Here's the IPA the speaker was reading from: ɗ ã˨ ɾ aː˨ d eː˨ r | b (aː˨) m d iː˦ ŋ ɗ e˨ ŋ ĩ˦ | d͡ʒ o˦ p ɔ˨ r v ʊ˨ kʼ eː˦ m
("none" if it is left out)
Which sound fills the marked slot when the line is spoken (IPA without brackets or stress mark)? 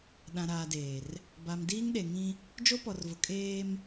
a˨